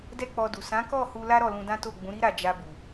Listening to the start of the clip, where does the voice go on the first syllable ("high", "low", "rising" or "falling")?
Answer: high